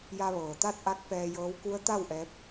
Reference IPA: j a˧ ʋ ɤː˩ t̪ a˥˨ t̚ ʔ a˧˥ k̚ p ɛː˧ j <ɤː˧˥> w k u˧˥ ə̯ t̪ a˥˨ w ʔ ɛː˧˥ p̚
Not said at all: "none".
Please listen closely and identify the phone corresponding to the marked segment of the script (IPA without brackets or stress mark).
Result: ɤː˧˥